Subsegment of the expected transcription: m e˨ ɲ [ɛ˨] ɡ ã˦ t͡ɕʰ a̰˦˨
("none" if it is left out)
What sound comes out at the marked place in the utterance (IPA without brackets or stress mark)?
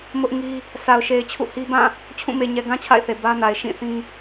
ɛ˨